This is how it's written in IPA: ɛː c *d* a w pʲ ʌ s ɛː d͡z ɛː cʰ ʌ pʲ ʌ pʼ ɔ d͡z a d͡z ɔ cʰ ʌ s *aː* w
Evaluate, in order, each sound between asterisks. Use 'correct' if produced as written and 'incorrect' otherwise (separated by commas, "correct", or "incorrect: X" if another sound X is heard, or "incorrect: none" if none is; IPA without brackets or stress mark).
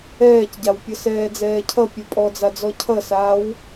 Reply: incorrect: ɟ, correct